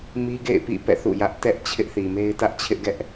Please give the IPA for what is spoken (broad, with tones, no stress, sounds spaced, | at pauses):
m i˦ ɡ ḛ˦˨ ɪ̯ p ḭ˦˨ p ɛ̰˦˨ θ ṵ˦˨ j ä˦ ʔ t ɛ˦ ʔ t͡ɕʰ ɪ˦ ʔ θ i˨ m e˦ ɪ̯ t ä˦ ʔ t͡ɕʰ ɪ˦ ʔ ɡ ɛ˦ ʔ